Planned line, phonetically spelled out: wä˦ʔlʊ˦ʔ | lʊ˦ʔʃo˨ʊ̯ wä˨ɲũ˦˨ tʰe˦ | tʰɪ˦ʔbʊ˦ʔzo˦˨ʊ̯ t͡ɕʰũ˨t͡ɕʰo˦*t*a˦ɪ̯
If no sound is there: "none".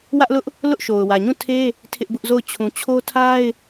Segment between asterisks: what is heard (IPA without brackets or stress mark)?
tʰ